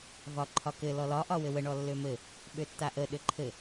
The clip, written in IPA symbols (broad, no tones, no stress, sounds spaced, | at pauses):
v ɒ ǃʰ ɒ k ɘ l ɔ l ɒ ʔ ɒ w ɘ w ə ɳ ɔ lː ø m ɘ | ɓ ø tː a ʔ ə ɗ ɘ ǃʰ ɘ